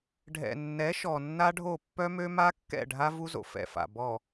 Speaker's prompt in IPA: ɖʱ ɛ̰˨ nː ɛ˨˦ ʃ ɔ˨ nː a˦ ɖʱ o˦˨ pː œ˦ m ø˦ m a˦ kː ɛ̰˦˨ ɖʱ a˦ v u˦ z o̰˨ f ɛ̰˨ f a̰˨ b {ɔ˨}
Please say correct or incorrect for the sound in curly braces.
correct